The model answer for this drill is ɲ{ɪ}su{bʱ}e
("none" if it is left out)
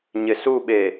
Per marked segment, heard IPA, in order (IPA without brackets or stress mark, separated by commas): ɪ, ɓ